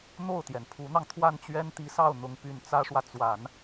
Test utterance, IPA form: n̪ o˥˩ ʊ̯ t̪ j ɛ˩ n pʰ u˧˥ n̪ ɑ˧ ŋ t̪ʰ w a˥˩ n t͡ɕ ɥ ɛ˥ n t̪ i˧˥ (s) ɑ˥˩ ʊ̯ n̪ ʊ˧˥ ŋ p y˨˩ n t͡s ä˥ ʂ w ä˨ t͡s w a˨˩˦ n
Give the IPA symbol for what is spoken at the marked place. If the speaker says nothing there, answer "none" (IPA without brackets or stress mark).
s